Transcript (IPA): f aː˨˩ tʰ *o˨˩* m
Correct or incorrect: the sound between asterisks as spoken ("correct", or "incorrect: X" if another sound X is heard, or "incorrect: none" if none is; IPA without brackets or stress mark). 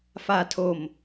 correct